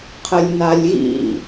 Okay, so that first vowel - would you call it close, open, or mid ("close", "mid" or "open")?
mid